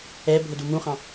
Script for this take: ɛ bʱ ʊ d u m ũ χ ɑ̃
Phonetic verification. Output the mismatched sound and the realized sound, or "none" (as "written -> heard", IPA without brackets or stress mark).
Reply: none